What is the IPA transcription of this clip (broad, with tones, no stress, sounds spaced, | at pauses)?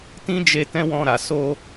t ĩ˦ d͡ʒ e˧ t ɛ̃˦ w ɔ̃˧ ɾ a˨ s o˧